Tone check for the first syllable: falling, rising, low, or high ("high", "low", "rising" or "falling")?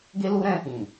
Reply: high